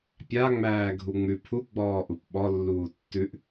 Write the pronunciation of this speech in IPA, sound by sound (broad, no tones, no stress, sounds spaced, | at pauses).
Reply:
pʲ a ŋ͡m æː ɡʱ u ŋ͡m ʉ pʰ u ɡ͡b ɔː ʔ u p ɓ ɔ lː uː tː ʉ ʔ